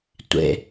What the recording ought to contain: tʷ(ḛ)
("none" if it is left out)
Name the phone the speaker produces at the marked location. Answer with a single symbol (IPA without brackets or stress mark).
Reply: ḛ